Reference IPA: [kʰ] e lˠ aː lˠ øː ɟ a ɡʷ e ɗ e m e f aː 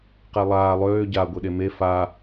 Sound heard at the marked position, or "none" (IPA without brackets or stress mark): q